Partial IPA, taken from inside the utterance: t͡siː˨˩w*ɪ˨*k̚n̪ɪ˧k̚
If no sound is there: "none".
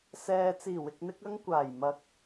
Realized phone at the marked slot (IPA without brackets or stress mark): ɪ˨